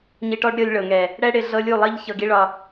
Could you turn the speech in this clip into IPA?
ɲ i˧ ʈ ɔ˦ ɖ ɾʲ ɤ˧ lʲ ɭ ɤ˨ ŋ ɛ˨ | ɽ ɛ˦ ɽ ɪ˧ ɮ ɤ˦ lʲ u˦˨ lˠ i˦ ʎ ç ɤ˧ ɡ i˦ ɭ ɒ˧

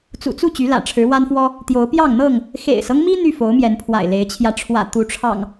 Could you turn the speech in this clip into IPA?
t͡s ṵ˨˩ t͡s u˥˨ t͡ɕ y˨˦ l ä̰˨˩ ʈ͡ʂʰ ɻ̩˨˦ w a˦ n f w ɔ˦ | t̪ j o˨˦ ʊ̯ p j ɑ˥˨ ŋ n̪ ɤ˥˨ ŋ | x ḛ˨˩ ɪ̯ s ɤ˦ ŋ m i˦ n̪ y˥˨ f o˨˦ ʊ̯ m j ɛ˨˦ n pʰ w a̰˨˩ ɪ̯ l e˨˦ ɪ̯ t͡ɕʰ j ä˧ ʈ͡ʂʰ w ä̰˨˩ t̪ u˨˦ ʈ͡ʂʰ ɑ̰˨˩ ŋ

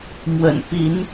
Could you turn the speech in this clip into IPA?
m w ə̰˨˩ n p i˨˦ n

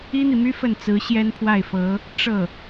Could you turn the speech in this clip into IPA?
i˥ n̪ i˨ m y˥ f ə˥˩ n t͡s ɹ̩˧˥ ɕ j ɛ˥ n pʰ w a˥˩ ɪ̯ f ɤ˧˥ | ʈ͡ʂ ɤ˥˩

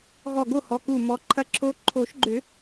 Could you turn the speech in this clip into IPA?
ɣ ɔ˧˩ ɡ o˥˨ h ɔ˩˧˩ k u˧˩ m ɔ˨˦ ǃʰ ɐ˦˥ ǁʰ o˦˥ ǃʰ o˨˩˦ ʃ ɡ͡ǃ ʏ˨˩˦

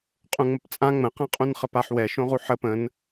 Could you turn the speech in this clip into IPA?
qʼ ũ ŋ͡m ə p t͡sʼ ã ŋ͡m ə̃ q ã qʼ ũ n χ ə p a ħ w ɛ ʃ õ ʁ u ħ ə p ə̃ n

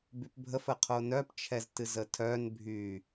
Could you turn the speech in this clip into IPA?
b y p bʱ ə f ə qʰ o n œ p t͡ʃʰ ɛ z t ɨ z ə tʰ œ n bʱ y

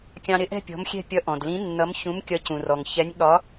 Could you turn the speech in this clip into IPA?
kʲ ɑ̃˧ ɾ ɪ˨˥ ʔ ɛ̤˥˧ pʲ ɔ̤˨˥ m xʲ ɛ̤˥˧ pʲ ʌ˧ ʔ ɔ̃˩ d l ĩ˨˥ nː ʌ˨˥ m ç ũ˨˥ m kʲ ʌ˨˥ c ũ˩ r ɔ˩ ŋ ç ɛ˨˥ nʲ ɠ ɒ˨˥

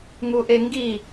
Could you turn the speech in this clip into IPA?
ŋ u ʔ e ŋ ɡ i

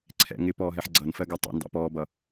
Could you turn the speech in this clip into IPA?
ǀʰ ɛ̰ ŋ ɪ p ɔː ɦ ɛ ħ ɡ͡ǀ ʌ n f ɜ ɡ ɛ tˤ ɛ̰ n d ɑ̰ p ɔː b ʌ

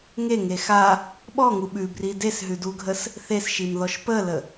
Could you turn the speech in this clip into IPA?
ŋ e ŋ e x a | ɓ ɔ ŋ u ɓ ʉ b r i d e s ɦ ʉ d u ɡʱ ə s | θ e s ʃ i m ð ɔ ʃ p ə l ə

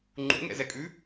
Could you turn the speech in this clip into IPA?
ŋ͡ǃ ṵ ŋ ɛ̰ z ɛ kʼ ʉ

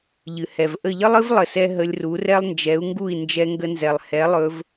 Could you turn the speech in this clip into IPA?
ʎ ɨ˩ h ɛ˩ v ʔ ə˥˩ ʎ ə˥ lˠ ɨ˥ v lˠ ə˧ s ɛ˥ ɦ ə˧ lʲ r u˩˥ r ɛ˥ lˠ n d͡ʒ ɛ˩˥ u̯ ŋ ɡ u˥˩ i̯ n d͡ʒ ɛ˧ ŋ ɡ ə˧ n z ɛ˩ lˠ h ɛ˩˥ lˠ ɵ˧ v

